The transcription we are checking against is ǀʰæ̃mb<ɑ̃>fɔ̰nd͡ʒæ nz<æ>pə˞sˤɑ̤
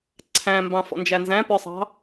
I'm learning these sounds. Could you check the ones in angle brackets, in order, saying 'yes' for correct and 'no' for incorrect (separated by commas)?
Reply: yes, no